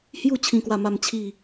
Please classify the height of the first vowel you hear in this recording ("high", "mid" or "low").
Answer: high